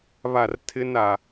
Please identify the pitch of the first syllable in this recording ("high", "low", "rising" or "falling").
falling